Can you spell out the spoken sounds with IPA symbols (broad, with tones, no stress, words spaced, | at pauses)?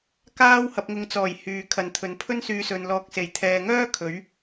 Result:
kaː˥w hɐ˧p̚ŋʊ˧ŋt͡sɔː˨˩j hyː˨kʰɐ˨˧nt̪ʰɵ˨˥n pʰɵ˥nsyː˧sɵ˨n lɔː˨k̚se˨˩j t̪ʰɛː˨ŋœː˥ kʰɵ˨˥ɥ